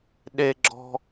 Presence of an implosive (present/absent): present